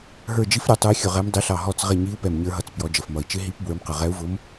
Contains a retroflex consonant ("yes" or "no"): no